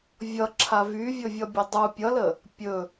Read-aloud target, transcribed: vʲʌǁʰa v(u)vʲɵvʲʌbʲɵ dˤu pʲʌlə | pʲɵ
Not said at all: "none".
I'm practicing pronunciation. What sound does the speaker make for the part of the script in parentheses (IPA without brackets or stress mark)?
y